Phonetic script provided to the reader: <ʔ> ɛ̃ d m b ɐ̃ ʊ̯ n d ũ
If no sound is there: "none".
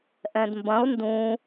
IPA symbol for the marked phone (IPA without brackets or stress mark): ʔ